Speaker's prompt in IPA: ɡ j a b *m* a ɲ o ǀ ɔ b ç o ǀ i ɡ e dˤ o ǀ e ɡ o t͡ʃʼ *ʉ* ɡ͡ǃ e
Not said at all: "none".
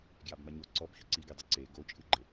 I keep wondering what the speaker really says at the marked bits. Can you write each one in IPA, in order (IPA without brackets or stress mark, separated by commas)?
m, ɨ